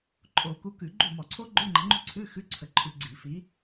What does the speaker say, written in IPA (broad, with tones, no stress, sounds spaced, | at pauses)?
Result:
ǃʼ o˧˩˧ k u˨˦ k ʉ˧˩˧ ɡ͡ǃ ṳ˥˩ m ɔ˧˩˧ ǀʰ o˦˥ ɡ͡ǃ ʉ˧˥˧ ŋ͡ǃ ə̤˨˦ ŋ͡ǃ ṳ˥˩ ǀʰ ʉ˧˥˧ x ʉ˧˥˧ ǀʰ ə˧˩˧ ǃʰ ʉ˨˦ ɡ͡ǀ i˧˩˧ f i˨˦